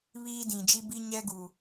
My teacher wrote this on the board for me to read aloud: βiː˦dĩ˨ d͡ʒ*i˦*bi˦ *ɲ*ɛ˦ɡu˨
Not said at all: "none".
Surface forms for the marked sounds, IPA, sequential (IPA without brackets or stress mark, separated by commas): i˦, ɲ